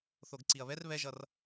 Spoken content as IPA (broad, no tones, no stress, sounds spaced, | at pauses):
θ o ɡ ǀ i ɐ̯ β ɛ r β ɛ ʒ ʌ r